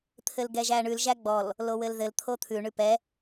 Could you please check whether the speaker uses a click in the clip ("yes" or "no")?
no